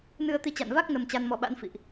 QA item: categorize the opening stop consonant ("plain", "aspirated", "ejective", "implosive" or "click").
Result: plain